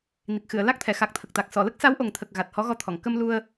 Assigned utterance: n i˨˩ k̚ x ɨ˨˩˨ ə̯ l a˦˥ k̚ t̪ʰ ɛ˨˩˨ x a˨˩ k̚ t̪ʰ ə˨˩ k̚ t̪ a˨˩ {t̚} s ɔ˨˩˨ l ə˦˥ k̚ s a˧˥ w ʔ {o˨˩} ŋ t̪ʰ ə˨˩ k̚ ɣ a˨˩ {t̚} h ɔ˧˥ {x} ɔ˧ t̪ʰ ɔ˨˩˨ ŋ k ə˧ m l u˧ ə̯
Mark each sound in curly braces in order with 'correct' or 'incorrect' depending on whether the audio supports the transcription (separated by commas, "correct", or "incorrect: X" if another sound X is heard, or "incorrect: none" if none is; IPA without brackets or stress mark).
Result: incorrect: k̚, correct, correct, incorrect: ɣ